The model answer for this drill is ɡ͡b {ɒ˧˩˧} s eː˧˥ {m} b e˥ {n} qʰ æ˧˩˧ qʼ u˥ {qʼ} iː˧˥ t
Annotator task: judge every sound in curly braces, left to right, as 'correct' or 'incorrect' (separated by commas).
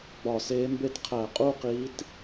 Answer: correct, correct, incorrect, incorrect